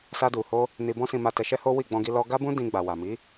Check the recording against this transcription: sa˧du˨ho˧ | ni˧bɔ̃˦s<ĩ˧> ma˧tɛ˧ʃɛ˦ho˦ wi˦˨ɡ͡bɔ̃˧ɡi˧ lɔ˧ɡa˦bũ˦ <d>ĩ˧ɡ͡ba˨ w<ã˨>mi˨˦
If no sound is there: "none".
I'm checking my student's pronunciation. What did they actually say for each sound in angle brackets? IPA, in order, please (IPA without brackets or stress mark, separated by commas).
ĩ˧, d, a˨